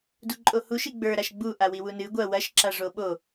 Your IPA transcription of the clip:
d u ǃʼ o h u ʃ i ɡ͡b ə˞ ɾ a ʃ ɡ͡b u ʔ a w i w u n ɨ ɡʷ ɐ w ɐ ʃ ǁ a ʐ o ɓ o

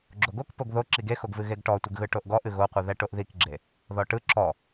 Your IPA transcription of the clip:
ɡ͡ǁ o ɡ o k p o ɡ ð o ǁ i ɡ e x o ɡ v ɨ ɣ e ɡ ʈ ɔ tʷ ɯ ɡ ɣ ɯ ʈ o ʔ ɡ ɔ ʔ ɨ ɣ o qʷ ɨ ð ɛ ʈ o ʔ ð i k ɡ͡ǁ e | ð ɔ ʈ ɯ ǁ ɔ

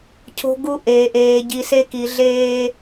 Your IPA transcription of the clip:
cʰ o̤˦ ɡ u˦ ʔ eː˨ ʔ eː˨ ɟ i˨ s e˦ k i˨ ɮ eː˦

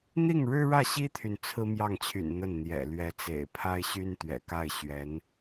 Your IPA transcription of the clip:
n̪ i˥˩ ŋ ɻ ɻ̩˥ ɻ ä˥˩ ɕ i˥ t̪ʰ y˨ n t͡sʰ ɹ̩˥ m j ɑ˥˩ ŋ t͡ɕʰ y̰˨˩ n n̪ ə˥˩ n n̪ j ɛ̰˨˩ l ɥ ɛ˧˥ t͡s ḛ˨˩ ɪ̯ pʰ a˥ ɪ̯ ɕ y˥ n t̪ ɥ ɛ̰˨˩ k a˥˩ ɪ̯ ɕ ɥ ɛ˧˥ n

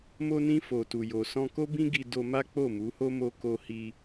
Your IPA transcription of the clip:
m o˧ n ĩ˧ f o˨ t u˨ j o˨ s ɔ̃˧ k o˦ b ĩ˦ ɡ i˧ d o˧ m a˦ k͡p o˦˨ m u˨˦ h o˦ m o˦ k o˦ h i˧

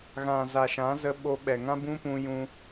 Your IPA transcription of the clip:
ɣ ã˨ z a˨ ʃ ã˨˦ z ə˧ ɓ o˧ ɓ ɛ˨ ŋ ã˦ b ũ˦ p ũ˧ j ũ˧

